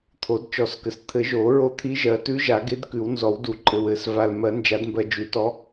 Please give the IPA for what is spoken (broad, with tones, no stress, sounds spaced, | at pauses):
t̪ʰ o˨˩˦ d t͡ʃ ɔ˨˩˦ s k ɘ˨ s t̪ʰ ɘ˨˩˦ ʒ oː˨˩˦ ɹ o˧˥ t̪ʰ i˧˥ ʒ ɜ˨˩˦ t ʉ˧˥ ʒ a˨˩˦ ɡ e˧˥ d k ʉ˨˩˦ w n z ɔ˨˩˦ w d u˨˩˦ ǃʼ ɘ˨ w ɘ˨˩˦ s v a˨ l m ɜ˨˩˦ n d͡ʒ a˨˩˦ d m b ɜ˨ d͡ʒ ʉ˨˩˦ t ɔ˧˥